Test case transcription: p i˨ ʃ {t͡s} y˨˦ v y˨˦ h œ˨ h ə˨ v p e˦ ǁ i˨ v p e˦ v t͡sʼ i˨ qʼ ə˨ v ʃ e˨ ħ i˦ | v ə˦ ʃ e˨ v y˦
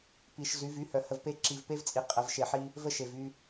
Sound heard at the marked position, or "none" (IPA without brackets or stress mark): z